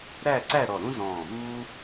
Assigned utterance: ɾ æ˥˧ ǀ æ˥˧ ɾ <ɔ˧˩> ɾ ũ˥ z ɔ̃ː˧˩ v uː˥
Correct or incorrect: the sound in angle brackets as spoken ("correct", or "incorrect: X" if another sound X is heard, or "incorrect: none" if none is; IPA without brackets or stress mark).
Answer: correct